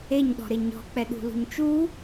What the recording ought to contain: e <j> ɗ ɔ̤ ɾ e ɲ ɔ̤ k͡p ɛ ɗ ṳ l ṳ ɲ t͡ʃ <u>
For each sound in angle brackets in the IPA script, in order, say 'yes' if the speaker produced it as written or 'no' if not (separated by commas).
no, yes